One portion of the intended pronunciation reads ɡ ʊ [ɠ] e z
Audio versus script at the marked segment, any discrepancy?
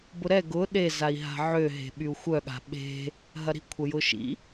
yes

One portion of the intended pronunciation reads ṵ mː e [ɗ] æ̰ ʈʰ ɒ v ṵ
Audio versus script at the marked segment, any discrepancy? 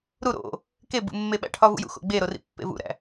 yes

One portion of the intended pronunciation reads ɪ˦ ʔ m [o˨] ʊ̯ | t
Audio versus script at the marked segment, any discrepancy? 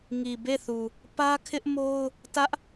yes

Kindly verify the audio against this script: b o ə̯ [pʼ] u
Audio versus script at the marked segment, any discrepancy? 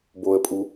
no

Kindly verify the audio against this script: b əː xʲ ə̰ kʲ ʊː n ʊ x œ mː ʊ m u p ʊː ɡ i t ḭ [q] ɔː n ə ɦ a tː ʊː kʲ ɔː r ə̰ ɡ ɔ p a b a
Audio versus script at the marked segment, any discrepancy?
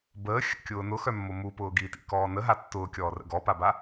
yes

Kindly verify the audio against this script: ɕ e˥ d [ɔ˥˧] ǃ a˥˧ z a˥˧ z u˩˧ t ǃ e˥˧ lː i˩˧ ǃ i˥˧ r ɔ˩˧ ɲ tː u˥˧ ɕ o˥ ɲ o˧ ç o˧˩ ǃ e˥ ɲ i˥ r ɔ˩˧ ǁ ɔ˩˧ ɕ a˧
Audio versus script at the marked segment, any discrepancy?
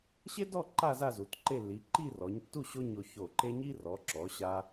no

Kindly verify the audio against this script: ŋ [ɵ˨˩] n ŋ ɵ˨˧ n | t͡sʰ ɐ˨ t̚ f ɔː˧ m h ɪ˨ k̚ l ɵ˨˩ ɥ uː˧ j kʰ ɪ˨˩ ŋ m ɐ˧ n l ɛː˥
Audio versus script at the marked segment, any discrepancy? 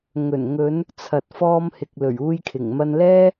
no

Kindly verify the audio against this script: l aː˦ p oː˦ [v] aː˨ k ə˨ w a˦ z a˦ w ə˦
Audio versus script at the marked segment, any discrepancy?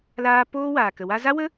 yes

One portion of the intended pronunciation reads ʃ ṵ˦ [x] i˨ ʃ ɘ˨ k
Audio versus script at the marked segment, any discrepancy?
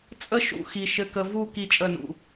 no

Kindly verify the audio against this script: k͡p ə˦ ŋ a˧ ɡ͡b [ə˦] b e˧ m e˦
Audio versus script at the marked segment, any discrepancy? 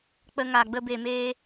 no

